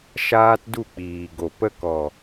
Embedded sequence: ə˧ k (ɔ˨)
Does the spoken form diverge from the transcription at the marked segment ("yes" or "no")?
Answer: no